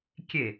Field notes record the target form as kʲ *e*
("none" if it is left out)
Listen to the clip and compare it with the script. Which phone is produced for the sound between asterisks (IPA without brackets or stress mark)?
e